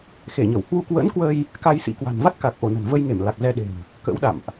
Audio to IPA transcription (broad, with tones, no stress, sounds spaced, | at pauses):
x e˧˩ ɲ ə˧˩ w h w u˧ k w ə̰˧˥ n k w ə˧ j | k a˧ j s ḭ˧˥ k w a̤˨˩ n v a˦˥ t̚ k a˨˩ k̚ ʔ o˧˩ n ə̤˨˩ n v ə˧ j ŋ e˧˩ m l a˨˩ k̚ z ɛ˧ ɗ e̤˨˩ m | k ə̰˧˥ w ɗ a̰˧˨ m ʔ